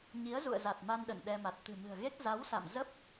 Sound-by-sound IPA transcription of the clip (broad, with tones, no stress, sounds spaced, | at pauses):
ɲ i˨˦ ə̯ z ṵ˧˨ ə̯ z a˨˩ t̚ m a˧ n ɗ ə̰˧˨ n ɗ ɛ˧ m a˨˩ t̚ t̪ ɨ̤˨˩ m ɨ̤˨˩ ə̯ ɣ e˦˥ k̚ z a˨˦ w s a̰˧˨ m z ə˦˥ p̚